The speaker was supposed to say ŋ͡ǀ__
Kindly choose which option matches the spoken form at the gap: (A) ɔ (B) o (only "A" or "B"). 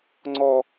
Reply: A